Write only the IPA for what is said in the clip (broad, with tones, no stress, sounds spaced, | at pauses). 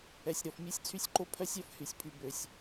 ɛ˩ sʲ ɾ ɔ˩ f mʲ ø˥ sʲ t͡sʰ y˥ sʲ ǃ o˥ pʰ œ˥ sʲ œ˥ f h y˩ sʲ pʰ y˩ b ø˩ sʲ